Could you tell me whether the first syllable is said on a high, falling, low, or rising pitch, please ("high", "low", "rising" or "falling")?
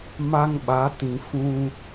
high